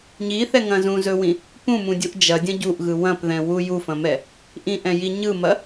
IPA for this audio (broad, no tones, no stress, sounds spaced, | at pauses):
ɲ i θ ɛ ŋ ɐ̃ z ũ z ɵ w ĩ | p ũ m ũ dʲ u ʔ d͡ʒ ɐ dʲ ɐ̃ ɟ u ʔ ɣ ɯ w ɐ̃ p ð ɛ̃ w u j u f ɐ̃ m ɛ | ʔ ĩ ʔ ɛ̃ j i ɲ ɯ m ɐ